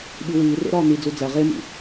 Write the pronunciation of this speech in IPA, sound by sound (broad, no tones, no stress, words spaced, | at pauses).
ɓiwiːrḛ ɾɒːn̪i d͡zud͡zæ ʁemḭ